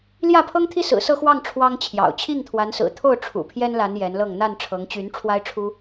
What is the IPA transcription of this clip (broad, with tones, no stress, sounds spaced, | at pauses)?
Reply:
l j ä˥˨ pʰ ɤ˦ ŋ t̪ʰ i˦ s ɹ̩˨˩ s ɤ˥˨ x w ɑ˥˨ ŋ ʈ͡ʂʰ w ɑ˦ ŋ t͡ɕʰ j ɑ̰˨˩ ʊ̯ t͡ɕʰ i˥˨ ŋ t̪ʰ w a˨˦ n s ɹ̩˨˩ t̪ʰ o˥˨ ʊ̯ ʈ͡ʂʰ ṵ˨˩ pʰ j ɛ˦ n l a˨˦ n j ɛ˨˦ n l ɤ˥˨ ŋ n̪ a˥˨ n ʈ͡ʂʰ ɤ˨˦ ŋ t͡ɕ y˨˦ n ʈ͡ʂʰ w a˦ ɪ̯ ʈ͡ʂʰ u˦